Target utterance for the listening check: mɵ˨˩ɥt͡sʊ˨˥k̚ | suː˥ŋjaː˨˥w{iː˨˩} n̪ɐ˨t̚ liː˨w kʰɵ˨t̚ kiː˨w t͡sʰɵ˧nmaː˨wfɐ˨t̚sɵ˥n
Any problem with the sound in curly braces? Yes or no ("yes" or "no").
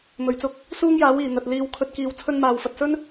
no